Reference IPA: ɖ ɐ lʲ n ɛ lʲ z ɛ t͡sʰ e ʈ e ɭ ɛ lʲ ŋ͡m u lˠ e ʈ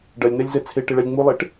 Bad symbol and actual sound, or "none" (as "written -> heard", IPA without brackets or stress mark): none